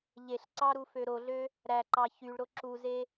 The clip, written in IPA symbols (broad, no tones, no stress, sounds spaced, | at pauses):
ʎ e ɬ ǀ ɑ ɾ u f ø ɾ o ɮ ø | ɾ æ ǃ ɑ ç y ɭ ɾ o ǁ u z e